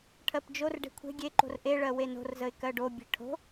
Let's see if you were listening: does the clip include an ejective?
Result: no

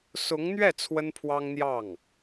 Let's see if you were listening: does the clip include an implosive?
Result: no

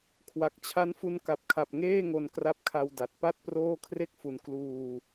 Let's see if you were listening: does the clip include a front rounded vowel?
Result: no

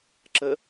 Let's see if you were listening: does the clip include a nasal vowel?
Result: no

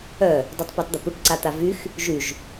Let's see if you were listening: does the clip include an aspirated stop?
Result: no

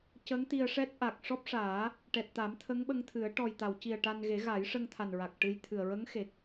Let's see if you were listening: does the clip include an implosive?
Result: yes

